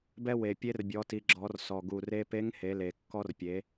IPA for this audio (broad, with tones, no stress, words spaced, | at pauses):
bɛ˧we˩ pʲe˧˥rbʲɔ˩˧ti˩˧ɡ͡ǁɔ˩˧r sɔ˩ɡu˩ re˧pe˧˥ŋ he˩˧le˩ kːɔ˧rpʲe˩˧